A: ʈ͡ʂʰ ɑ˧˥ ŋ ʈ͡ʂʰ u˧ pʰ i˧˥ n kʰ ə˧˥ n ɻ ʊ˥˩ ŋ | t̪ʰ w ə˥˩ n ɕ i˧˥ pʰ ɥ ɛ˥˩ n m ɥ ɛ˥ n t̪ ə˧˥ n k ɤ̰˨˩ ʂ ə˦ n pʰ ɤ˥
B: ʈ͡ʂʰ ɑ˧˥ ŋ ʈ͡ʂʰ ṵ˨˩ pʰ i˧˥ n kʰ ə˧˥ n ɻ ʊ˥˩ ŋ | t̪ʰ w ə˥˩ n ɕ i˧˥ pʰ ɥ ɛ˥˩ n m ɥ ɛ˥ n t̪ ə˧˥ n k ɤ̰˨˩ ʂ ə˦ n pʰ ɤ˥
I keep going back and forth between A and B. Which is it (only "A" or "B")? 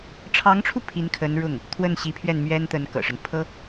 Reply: A